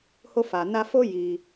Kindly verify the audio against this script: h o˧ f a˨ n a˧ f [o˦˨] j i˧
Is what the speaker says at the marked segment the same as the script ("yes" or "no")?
no